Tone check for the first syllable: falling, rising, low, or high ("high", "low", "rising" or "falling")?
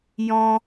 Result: high